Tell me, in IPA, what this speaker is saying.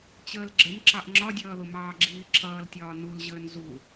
t͡ɕ əː l ɡ͡ǁ ə n ǁ ɑ ʔ ŋ͡ǁ ɒ dʲ ʌː ð ʊ m ɑː ɡ͡ǁ iː ǁʰ ʌː l tʲ ɒː n u l ʑ əː n z u

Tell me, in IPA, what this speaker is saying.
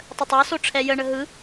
tˤ ə tˤ a s o ʈ͡ʂʰ ɛ j ə ɳ ə ɦ ɯ

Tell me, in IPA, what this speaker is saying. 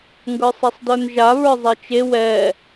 ŋ ɡ ə˞ sˤ e sˤ d ə˞ n ʒ a β ə˞ zˤ e t͡ʃ e w ɛ

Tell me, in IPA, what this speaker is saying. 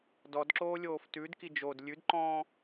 d ɔ d ǁ oː lʲ oː f t ʉ d k i d͡ʒ o d lʲ ʉ d ǃ ɔ̃ː

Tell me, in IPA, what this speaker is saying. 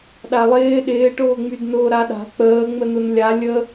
ɗ a lˠ ɪː ɗ ɪː ʈ ʊː ŋ͡m y d n ʊː ɾ a ɗ a̤ k͡p əː ŋ͡m ə n ʊ n lʲ a lʲ ə

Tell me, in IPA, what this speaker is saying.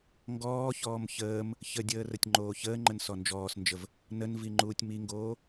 ŋ ɡ ɔː ç ɔː m ç əː m | ç ə dʲ əː r ə tʲ ŋ͡ǃ oː ç əː ŋ͡ǃ ə n s ɔ n d͡ʒ ɔː s n d͡ʒ ə v | n ə n v i ŋ͡ǃ uː tʲ m i ŋ ɡ oː

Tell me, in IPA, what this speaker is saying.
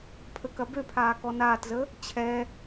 pʰ ə k ɐ b ø pʰ aː k ɔ n aː t z ə | t͡ɕʰ ɛ

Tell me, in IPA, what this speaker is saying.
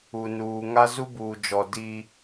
u˨ n uː˨ ŋ a˦ z u˦ b uː˨ d͡ʒ ɔ˨ d i˦

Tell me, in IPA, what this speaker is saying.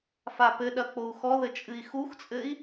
f a p ɘ ɗ ɐ k͡p o u̯ x ɔ ð ɘ t͡ʃʼ ɨ i̯ x u x t͡sʼ ɘ i̯

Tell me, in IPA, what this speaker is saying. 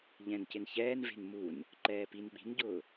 ʎ ɛ̃ n c ɪ n ç ɛː n v e̤ n m u n | ǃ ɛː p i n ɓ i̤ n ɟ ʊː

